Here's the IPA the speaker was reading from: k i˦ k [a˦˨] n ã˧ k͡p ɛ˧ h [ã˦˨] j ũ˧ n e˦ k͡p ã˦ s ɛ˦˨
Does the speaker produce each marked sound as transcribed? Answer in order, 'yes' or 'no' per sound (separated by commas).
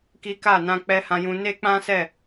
yes, no